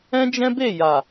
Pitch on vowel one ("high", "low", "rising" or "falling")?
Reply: high